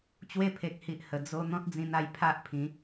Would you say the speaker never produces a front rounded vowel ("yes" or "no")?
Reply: yes